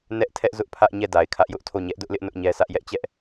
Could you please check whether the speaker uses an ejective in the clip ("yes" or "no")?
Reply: no